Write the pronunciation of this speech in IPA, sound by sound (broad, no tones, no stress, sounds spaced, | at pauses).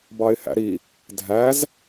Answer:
b ɑ ɪ̯ h æ̰ ɾ i | dʱ æ z